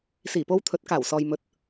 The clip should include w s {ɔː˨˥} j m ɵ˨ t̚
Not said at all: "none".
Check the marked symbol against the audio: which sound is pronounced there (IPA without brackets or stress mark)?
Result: ɔː˨